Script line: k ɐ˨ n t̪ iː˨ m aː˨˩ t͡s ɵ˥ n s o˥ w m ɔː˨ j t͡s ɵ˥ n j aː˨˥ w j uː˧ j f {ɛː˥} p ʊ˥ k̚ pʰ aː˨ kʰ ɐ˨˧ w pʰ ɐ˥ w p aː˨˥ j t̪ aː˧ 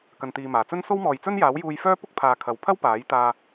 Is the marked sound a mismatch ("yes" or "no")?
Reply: yes